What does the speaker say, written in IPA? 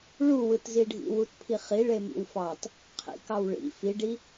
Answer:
ɭ u w ɯ t z i ɖʱ ḭ w u t pʰ i χ i ɭ e m ḭ w f ɑ t | qʰ ḭ k ɑ w ɭ ḭ f i ɖ i

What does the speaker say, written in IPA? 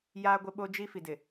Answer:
j aː˦ ɡʷ ɪ˦ ɓ o˦ d͡ʒ i˦ f i˨ d ɪ˨

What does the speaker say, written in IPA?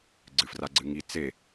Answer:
ɡ͡ǀ ɨ f r a ɡ͡ǀ ɨ ŋ i t͡s e

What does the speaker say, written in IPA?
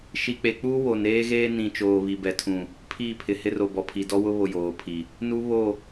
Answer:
ʃ i˨ k͡p e˨ k͡p u˦ w o˨ n eː˦ ɣ eː˦ n ĩ˨ t͡ʃ oː˨ β i˨ b ɛ˨ tʰ ũ˨ | pʰ iː˦˨ pʰ ɪ˨ h ɪ˦ r o˨ b ɔ˨ pʰ i˨ d ɔ˦ w ʊ˦ β o˨ j oː˨ pʰ i˨ | n u˦ β o˦˨

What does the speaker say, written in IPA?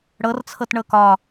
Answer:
ɽ ɤ r t͡sʰ ɤ t ɳ ɤ k ɒ

